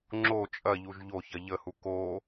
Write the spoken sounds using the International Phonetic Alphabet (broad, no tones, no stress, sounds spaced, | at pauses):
ŋ͡ǁ o t͡ʃʼ ɐ ʎ u ʒ ʎ o ç ɐ ʎ ə h u k o